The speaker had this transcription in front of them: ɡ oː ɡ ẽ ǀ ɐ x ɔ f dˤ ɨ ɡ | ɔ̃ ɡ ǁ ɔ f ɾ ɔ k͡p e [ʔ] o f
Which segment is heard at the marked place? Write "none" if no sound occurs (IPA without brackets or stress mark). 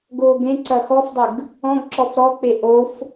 ʔ